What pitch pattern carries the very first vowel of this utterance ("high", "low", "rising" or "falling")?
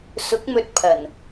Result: rising